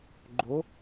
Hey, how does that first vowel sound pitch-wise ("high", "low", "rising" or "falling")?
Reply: rising